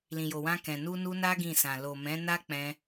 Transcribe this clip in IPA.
l ĩ˨ j o˨ w ã˧ k ɛ̃˨ n u˧ n u˧ n a˦ ɡ ĩ˦˨ s ã˨ l o˨ m ɛ̃˨˦ n a˦ k͡p ɛ̃˧

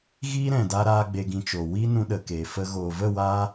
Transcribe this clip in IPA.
ɣ iː˦ ɾ ɛ̃˨ d a˧ ɾ aː˦ ɡ͡b e˧ ɡ ĩ˧ t͡ʃ o˨ w i˦ n ũ˧ ɗ ə˨ k eː˨ f ə˧ ɣ oː˨ v ə˦˨ w aː˧

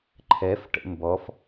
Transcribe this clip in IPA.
ǃʰ ɛ f ʈ ə̰ m b ɔ f

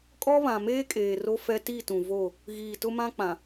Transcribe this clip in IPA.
kʼ ɔ˦ β ã˨ m eː˦ kʼ eː˨ r o˦ f ɛ˦ t i˦˨ t ũ˨ v o˦˨ | ɣ iː˨ t ʊ˦ m ã˦ k͡p ã˨

